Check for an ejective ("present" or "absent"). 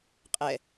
present